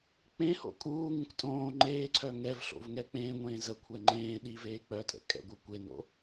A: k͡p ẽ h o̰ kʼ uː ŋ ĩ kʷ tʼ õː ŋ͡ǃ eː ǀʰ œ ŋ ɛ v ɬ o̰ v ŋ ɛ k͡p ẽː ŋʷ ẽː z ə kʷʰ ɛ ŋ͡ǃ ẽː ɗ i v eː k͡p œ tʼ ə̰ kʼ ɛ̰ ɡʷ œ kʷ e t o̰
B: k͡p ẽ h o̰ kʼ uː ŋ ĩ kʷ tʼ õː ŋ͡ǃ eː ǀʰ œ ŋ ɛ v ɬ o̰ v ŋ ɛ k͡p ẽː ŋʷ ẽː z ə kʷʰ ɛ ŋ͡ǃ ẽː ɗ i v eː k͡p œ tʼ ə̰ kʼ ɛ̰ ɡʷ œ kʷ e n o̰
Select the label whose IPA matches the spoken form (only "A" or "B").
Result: B